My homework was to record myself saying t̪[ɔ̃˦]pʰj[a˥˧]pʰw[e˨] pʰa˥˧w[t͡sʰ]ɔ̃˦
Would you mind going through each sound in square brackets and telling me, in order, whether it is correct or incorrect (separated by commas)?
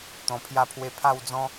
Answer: incorrect, correct, incorrect, incorrect